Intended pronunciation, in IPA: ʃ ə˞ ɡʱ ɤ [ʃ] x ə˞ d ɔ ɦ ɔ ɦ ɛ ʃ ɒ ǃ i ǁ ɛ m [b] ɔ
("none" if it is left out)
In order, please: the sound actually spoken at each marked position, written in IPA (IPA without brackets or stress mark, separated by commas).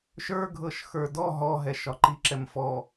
ʃ, f